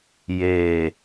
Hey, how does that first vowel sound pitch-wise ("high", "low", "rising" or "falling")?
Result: low